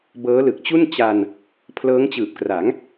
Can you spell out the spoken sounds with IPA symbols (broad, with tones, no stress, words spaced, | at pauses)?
bɤː˦˥lɯ˨˩k̚t͡ɕu˥˩n t͡ɕa˧n | pʰlɤː˦˥ŋt͡ɕɯː˨˩p̚kra˩˦ŋ